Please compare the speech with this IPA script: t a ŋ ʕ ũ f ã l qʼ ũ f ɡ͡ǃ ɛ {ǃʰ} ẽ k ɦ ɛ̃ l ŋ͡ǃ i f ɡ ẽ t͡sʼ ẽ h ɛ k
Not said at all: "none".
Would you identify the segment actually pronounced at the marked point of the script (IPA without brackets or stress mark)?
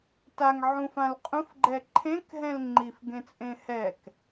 ǃʰ